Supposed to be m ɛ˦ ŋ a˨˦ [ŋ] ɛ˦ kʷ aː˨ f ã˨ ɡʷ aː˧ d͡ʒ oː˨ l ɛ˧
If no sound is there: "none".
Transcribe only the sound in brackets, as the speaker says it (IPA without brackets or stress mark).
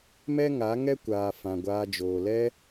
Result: ŋ